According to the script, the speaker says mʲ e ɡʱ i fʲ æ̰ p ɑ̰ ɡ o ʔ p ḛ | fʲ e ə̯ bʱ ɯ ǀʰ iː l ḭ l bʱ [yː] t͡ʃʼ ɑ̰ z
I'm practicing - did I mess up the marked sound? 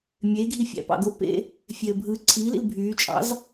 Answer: no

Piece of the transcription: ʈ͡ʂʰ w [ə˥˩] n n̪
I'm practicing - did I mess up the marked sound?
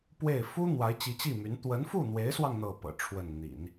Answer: no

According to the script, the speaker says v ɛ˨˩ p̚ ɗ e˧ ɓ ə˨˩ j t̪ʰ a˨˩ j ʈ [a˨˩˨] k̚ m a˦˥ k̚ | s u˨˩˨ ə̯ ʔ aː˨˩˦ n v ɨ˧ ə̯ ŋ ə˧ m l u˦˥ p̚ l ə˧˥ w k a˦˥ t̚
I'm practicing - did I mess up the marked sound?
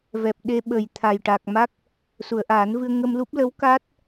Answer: yes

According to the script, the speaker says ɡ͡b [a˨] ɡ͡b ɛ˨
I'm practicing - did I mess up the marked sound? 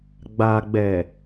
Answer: no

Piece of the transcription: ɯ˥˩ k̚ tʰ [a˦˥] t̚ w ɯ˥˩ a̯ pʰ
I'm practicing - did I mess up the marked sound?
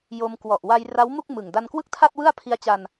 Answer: yes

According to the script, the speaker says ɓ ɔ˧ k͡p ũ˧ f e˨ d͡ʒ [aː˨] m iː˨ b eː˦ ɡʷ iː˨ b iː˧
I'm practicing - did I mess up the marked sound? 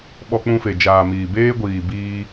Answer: no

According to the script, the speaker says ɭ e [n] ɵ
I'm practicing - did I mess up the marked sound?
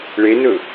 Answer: no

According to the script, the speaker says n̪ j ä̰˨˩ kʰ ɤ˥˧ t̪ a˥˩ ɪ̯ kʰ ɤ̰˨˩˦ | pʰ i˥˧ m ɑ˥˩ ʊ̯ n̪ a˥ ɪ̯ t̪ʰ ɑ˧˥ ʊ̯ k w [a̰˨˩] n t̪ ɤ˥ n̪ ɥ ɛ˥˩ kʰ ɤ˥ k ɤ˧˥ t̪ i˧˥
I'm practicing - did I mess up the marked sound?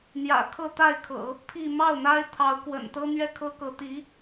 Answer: yes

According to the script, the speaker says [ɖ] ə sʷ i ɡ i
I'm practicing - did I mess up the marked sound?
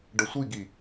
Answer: no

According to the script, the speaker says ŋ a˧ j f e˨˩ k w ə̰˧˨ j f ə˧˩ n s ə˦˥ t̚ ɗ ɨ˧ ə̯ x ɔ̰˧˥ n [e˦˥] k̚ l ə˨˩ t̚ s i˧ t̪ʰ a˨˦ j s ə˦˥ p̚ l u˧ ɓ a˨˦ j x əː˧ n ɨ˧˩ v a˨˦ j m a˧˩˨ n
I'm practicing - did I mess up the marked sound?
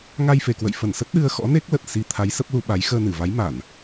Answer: no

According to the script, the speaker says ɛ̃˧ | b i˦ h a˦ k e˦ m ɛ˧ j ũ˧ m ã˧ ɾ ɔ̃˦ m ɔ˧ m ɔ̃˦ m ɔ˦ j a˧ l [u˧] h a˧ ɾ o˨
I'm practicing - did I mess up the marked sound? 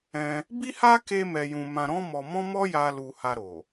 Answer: no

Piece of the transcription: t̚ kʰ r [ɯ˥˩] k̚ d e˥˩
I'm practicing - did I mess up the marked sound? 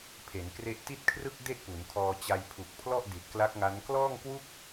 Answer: no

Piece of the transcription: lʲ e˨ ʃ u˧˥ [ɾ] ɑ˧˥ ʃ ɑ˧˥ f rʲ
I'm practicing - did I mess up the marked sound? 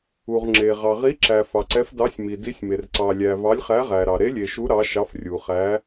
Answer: no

